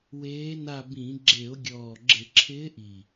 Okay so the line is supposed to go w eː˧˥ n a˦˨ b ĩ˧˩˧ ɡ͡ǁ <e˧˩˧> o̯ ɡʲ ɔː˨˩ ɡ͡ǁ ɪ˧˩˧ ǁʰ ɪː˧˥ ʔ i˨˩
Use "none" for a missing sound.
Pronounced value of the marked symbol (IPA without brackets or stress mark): e˧˩˧